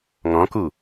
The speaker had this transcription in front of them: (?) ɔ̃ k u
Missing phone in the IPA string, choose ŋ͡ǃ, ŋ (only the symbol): ŋ